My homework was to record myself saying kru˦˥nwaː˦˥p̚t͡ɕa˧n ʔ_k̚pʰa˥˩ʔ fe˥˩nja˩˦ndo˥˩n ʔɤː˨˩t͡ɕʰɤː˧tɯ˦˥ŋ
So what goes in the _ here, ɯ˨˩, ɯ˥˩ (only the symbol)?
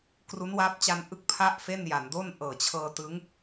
ɯ˥˩